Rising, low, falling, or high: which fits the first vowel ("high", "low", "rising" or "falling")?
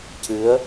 rising